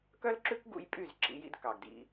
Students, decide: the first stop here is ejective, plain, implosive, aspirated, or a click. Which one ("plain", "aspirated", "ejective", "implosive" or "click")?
plain